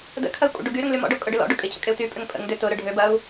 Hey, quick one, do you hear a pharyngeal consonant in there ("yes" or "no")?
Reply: no